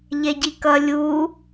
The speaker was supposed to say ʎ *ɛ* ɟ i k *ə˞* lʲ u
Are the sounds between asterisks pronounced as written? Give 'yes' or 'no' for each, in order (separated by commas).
yes, no